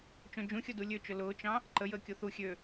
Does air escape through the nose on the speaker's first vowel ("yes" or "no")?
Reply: yes